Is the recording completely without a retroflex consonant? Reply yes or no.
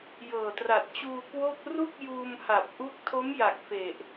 yes